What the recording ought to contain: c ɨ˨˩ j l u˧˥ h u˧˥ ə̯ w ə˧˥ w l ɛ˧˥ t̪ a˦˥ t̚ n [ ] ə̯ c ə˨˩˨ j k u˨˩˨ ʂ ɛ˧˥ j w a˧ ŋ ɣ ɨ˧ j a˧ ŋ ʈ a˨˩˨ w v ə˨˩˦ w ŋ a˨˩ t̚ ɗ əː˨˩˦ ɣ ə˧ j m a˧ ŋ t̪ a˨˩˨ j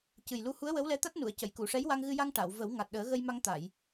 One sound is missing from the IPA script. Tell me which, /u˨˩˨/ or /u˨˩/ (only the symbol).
u˨˩˨